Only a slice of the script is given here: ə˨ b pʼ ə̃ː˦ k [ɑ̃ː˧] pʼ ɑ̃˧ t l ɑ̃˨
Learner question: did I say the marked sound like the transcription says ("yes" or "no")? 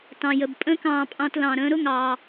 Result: yes